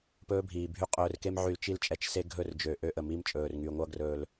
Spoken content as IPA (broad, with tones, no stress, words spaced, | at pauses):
pɵː˦bʱiː˨bʱy˦ qʼɵː˧rke˦mʕy˧l t͡ʃi˦˨lt͡ʃʼɛ˦t͡ʃse˦ ɡʱɵ˦˨rd͡ʒø˨ ʔø˦ʔə˨ mi˦mt͡ʃʼɵː˨rŋy˨ ŋʷʌ˧ɡrɵː˨l